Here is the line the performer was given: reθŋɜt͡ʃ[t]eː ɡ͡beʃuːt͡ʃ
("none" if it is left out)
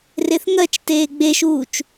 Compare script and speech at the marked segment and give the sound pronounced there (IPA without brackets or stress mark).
t